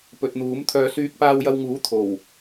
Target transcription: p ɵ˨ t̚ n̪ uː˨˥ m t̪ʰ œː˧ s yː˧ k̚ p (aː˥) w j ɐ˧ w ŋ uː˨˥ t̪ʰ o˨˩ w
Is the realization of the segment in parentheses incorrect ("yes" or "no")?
yes